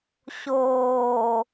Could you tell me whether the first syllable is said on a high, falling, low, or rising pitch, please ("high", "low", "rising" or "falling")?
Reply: low